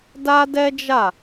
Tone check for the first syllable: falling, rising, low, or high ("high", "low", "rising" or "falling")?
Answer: high